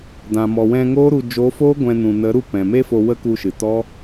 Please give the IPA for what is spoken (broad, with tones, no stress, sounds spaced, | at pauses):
d ã˨ m ɔ˨ w ɛ̃˧ ŋ oː˦ ɾ u˧ d͡ʒ o˨˦ f oː˦ ɡʷ ɛ̃˧ n ũ˨ n ə˨˦ ɾ u˦˨ p ɛ̃˨ m e˦ f o˧ w ə˦ k u˧ ʃ ɨ˨ t ɔ˦